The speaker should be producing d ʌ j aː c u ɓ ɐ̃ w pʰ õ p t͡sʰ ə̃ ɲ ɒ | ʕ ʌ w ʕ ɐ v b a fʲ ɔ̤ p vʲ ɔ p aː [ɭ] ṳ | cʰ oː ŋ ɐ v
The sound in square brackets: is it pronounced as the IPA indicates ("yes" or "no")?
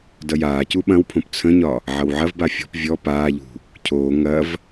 no